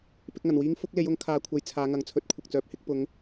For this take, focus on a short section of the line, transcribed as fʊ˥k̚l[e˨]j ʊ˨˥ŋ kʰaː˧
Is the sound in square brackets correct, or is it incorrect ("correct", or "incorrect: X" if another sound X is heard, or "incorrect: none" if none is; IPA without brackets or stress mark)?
incorrect: e˨˥